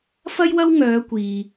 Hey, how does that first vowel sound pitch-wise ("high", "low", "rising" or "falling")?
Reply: high